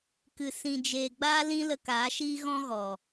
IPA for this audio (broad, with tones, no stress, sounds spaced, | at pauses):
k ɨ˨ s ĩ˨ d͡ʒ eː˨ ɡ͡b aː˦ l ĩ˦ l ə˧ k aː˨˦ ʃ iː˦ ɣ ɔ̃˦ ɣ ɔ˨